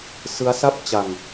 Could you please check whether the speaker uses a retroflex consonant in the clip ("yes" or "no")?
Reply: no